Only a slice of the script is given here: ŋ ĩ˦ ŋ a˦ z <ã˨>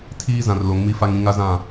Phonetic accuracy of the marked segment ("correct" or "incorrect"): incorrect